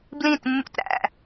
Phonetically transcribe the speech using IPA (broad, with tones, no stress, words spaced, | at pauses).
blĩ˦˨tmːṵ˦t ɾæ̰˦